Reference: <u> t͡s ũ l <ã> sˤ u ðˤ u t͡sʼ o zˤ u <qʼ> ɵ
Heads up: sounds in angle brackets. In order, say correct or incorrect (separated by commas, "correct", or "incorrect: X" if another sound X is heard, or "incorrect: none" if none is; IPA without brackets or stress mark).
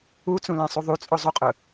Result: correct, correct, correct